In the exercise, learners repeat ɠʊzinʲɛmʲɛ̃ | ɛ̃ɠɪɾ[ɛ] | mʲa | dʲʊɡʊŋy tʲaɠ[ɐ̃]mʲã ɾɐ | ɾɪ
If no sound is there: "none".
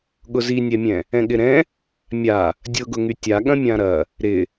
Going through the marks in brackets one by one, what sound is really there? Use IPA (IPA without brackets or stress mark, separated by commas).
ɛ̃, ɐ̃